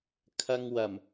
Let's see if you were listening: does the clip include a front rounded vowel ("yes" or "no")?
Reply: no